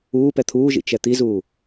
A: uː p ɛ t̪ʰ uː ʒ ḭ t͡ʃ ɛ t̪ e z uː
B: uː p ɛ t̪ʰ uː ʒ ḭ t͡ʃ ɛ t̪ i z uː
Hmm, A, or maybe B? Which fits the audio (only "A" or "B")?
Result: B